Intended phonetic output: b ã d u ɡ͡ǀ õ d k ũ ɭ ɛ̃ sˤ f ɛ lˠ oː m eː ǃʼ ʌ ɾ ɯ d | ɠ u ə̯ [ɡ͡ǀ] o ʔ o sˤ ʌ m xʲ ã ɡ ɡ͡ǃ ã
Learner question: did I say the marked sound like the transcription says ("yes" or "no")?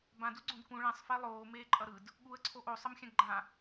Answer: no